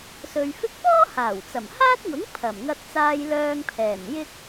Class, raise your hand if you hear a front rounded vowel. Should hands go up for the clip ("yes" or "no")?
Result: yes